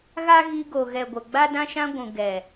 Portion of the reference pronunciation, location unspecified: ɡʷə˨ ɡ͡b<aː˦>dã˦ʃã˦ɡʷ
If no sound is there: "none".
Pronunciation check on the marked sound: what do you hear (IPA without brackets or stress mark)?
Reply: a˦